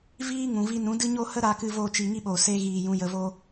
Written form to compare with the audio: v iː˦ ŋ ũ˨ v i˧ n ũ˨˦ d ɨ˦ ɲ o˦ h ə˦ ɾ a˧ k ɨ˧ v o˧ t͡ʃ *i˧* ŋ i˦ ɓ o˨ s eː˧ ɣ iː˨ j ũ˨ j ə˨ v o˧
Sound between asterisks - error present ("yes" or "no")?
no